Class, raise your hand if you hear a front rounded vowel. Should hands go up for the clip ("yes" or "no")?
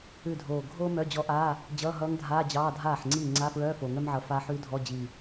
yes